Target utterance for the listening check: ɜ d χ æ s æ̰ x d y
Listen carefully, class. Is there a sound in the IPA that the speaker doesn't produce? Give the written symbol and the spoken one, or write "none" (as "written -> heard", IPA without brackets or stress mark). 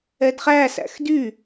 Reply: ɜ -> ɛ